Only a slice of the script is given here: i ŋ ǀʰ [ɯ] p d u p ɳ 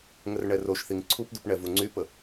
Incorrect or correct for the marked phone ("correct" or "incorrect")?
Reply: incorrect